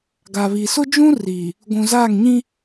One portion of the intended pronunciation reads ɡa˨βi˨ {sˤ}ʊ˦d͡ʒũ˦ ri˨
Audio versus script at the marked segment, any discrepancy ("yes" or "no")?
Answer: yes